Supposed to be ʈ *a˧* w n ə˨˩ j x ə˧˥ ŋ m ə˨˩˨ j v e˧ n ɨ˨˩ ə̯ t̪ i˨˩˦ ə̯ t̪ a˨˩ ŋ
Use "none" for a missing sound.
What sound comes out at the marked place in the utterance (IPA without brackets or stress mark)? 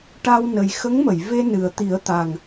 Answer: a˧